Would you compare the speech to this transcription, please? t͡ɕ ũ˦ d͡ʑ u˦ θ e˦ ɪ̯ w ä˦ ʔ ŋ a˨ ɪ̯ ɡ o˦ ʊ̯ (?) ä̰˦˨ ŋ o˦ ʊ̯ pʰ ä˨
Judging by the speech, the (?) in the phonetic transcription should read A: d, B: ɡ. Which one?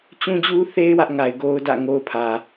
A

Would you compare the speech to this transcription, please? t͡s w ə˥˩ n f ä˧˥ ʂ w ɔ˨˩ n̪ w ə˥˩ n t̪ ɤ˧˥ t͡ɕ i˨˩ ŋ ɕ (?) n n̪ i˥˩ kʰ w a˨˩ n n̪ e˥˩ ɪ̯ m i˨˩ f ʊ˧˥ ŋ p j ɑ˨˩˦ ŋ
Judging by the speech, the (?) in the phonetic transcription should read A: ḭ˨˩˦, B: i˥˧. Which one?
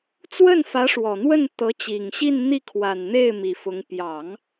B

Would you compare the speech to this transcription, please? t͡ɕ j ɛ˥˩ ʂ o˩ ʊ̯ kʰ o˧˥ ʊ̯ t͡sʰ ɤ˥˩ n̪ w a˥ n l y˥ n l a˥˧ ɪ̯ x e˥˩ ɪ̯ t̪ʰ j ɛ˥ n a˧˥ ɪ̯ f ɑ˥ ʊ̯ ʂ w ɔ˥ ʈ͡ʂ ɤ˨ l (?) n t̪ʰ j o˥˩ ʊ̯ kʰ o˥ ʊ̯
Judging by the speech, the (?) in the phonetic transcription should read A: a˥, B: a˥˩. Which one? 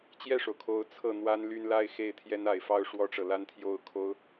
A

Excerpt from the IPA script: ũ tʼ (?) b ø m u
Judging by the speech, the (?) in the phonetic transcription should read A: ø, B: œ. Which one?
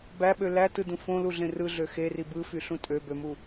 A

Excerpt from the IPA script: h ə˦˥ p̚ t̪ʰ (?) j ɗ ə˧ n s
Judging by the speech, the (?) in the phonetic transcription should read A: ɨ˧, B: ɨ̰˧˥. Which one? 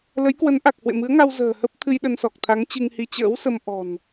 A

